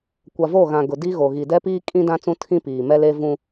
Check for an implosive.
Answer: absent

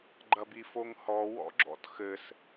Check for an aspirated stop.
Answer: absent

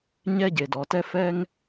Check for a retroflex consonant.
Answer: absent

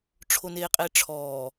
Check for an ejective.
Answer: present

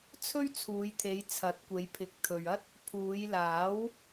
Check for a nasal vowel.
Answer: absent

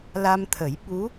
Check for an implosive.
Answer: present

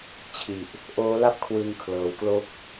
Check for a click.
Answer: absent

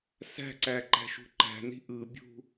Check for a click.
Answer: present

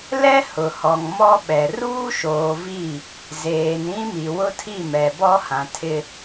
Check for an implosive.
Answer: present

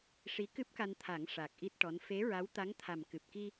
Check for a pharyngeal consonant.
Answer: absent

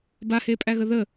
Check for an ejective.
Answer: present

